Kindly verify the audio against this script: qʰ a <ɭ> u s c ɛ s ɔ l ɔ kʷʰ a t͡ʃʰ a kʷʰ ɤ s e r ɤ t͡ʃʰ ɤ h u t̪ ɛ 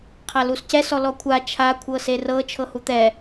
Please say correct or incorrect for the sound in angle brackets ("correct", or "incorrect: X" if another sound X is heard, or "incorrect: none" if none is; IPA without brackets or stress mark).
incorrect: l